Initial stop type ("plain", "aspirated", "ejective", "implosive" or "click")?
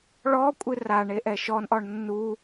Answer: ejective